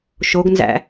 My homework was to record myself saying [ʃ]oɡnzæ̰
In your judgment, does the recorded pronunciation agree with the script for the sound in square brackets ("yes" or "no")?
yes